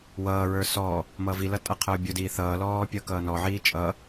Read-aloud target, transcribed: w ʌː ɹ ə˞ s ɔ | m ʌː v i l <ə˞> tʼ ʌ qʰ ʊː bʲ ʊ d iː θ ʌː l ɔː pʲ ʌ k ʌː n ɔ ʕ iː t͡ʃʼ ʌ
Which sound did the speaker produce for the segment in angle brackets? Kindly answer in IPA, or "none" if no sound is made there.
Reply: ʌ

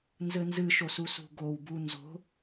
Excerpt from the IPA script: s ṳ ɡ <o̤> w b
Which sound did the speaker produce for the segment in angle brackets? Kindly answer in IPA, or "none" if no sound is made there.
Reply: o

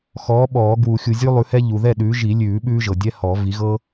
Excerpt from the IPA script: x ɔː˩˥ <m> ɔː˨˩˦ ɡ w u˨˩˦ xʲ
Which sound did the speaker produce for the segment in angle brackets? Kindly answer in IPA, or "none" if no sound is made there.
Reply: ɓ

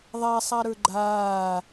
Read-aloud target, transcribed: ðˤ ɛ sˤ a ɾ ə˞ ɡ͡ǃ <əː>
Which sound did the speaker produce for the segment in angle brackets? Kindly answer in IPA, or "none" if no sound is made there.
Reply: aː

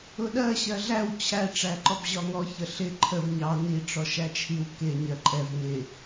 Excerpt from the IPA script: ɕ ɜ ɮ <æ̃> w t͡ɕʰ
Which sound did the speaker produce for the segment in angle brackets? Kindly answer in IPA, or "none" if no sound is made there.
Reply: æ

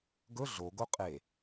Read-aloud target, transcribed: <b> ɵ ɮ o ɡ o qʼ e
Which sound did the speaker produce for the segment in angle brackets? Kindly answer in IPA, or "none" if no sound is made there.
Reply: ɡ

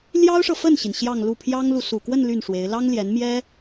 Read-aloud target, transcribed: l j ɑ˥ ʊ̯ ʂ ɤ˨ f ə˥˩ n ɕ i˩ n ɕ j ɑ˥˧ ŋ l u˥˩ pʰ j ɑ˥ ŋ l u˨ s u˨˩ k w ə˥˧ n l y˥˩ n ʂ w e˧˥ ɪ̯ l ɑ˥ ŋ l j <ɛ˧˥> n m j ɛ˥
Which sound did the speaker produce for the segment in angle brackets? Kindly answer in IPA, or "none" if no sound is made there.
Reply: ɛ˧˥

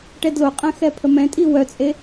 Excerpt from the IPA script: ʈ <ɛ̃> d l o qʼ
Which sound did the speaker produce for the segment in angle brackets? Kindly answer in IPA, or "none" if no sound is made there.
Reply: ɛ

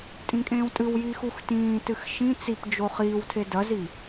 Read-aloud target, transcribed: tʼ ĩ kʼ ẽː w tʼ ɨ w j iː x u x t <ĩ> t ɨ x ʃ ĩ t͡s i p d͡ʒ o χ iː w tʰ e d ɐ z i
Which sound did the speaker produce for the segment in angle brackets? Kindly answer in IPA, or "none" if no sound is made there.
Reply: ĩː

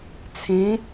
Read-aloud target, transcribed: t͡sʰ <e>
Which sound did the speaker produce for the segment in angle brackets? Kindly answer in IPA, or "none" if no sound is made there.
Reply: ẽ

